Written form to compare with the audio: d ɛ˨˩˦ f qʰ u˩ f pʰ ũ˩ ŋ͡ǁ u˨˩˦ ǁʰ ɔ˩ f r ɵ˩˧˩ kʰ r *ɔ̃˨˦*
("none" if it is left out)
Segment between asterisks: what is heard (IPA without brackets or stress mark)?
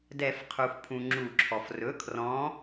ɔ̃˨˦